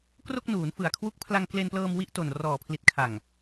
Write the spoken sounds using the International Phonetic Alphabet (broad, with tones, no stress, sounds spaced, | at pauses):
k r o˥˩ k̚ n uː˩˦ n f ɯ˨˩ a̯ kʰ w u˦˥ k̚ pʰ l a˧ ŋ k l e˧ n p l ɤː˧ m w i˥˩ ʔ t o˨˩ n r ɔː˨˩ pʰ l i˨˩ t̚ kʰ a˨˩ ŋ